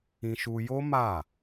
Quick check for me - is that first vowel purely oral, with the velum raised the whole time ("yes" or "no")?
no